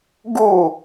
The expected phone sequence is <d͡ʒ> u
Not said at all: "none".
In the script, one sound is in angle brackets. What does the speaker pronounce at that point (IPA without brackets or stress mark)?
ɡ